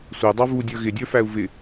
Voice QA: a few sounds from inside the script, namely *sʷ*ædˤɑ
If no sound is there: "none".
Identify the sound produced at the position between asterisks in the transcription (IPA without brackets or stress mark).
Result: sʷ